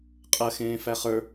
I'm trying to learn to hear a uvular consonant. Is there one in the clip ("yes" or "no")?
yes